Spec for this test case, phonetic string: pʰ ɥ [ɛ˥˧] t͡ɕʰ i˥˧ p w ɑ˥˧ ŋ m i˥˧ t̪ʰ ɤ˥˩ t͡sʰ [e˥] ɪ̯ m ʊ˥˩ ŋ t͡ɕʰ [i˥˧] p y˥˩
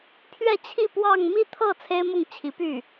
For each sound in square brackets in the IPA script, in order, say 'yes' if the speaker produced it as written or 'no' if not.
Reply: yes, yes, no

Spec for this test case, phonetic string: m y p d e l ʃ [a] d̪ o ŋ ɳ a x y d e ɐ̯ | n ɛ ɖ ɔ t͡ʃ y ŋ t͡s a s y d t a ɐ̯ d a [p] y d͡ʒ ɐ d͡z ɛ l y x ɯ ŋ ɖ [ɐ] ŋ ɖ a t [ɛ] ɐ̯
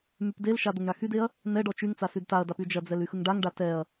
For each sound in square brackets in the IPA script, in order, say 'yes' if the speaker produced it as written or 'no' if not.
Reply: yes, yes, no, yes

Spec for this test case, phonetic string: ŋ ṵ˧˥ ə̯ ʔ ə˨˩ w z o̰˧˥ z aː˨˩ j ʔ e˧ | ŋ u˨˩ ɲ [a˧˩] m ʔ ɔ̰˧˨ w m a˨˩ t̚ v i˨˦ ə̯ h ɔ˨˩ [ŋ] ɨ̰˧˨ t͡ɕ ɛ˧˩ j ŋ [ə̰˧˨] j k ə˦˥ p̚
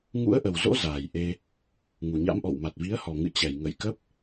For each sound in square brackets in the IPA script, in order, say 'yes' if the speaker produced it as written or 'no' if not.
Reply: no, yes, yes

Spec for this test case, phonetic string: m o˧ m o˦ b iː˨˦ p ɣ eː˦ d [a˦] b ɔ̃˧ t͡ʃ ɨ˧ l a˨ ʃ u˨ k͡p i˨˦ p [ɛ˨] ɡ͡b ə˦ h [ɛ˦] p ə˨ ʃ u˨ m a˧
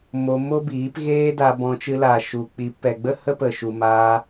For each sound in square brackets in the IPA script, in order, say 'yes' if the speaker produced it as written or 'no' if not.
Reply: no, yes, no

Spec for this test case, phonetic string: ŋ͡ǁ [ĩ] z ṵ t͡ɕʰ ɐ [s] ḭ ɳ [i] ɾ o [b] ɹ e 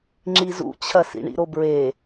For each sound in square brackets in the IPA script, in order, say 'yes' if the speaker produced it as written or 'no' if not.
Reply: no, yes, no, yes

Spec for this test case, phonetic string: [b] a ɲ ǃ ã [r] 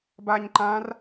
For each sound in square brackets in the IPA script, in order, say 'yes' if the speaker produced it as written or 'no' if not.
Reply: yes, yes

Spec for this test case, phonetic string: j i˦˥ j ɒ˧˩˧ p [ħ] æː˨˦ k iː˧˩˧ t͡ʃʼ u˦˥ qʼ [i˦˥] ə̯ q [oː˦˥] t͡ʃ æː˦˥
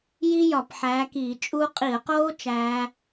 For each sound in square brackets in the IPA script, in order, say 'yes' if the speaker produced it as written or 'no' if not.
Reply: yes, no, yes

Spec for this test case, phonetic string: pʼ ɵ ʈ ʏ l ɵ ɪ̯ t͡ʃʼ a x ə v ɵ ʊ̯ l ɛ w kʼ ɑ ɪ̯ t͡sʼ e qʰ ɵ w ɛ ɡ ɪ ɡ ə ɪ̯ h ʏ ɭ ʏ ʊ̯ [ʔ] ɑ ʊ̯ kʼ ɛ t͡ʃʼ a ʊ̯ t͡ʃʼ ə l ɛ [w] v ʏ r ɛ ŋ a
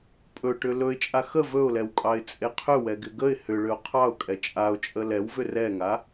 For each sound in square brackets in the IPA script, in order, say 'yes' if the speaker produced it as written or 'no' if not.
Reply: no, yes

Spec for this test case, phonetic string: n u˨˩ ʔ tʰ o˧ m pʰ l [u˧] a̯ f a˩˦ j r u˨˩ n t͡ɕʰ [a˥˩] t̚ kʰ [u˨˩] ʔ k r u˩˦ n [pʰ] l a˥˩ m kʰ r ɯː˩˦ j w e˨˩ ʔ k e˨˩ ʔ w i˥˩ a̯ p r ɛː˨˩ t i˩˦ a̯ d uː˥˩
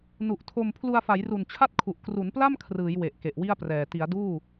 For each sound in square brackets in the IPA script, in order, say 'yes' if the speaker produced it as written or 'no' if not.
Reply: yes, yes, yes, no

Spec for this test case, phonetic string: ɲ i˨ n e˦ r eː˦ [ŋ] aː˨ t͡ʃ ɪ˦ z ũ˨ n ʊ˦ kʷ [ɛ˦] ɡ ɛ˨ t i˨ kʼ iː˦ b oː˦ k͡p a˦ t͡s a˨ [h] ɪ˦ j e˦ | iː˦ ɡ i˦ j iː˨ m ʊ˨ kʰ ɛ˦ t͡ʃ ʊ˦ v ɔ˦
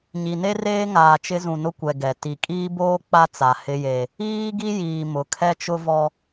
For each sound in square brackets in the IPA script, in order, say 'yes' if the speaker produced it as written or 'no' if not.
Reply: yes, no, yes

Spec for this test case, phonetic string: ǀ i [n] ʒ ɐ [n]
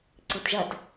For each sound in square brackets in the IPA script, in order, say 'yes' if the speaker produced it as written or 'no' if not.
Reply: no, no

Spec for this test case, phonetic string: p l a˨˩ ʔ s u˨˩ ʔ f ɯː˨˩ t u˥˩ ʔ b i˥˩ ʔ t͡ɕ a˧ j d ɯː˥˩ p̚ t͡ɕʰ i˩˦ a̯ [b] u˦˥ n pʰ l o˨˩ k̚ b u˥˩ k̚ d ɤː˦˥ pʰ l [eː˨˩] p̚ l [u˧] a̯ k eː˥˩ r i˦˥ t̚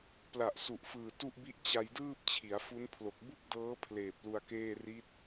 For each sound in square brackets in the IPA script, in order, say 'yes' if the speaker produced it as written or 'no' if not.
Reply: no, yes, yes

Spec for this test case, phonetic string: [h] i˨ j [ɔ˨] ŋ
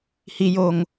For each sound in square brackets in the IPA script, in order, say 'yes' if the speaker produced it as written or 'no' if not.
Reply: yes, no

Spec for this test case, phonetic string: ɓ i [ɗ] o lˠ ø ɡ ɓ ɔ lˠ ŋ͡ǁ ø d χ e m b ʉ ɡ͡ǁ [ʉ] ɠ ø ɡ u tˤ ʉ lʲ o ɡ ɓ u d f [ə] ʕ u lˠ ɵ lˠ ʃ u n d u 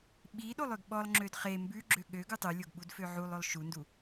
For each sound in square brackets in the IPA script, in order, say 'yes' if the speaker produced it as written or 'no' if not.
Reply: yes, no, no

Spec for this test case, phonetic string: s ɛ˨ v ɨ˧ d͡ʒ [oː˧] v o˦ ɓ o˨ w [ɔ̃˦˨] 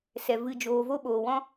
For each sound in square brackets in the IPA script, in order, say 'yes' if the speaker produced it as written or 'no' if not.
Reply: yes, no

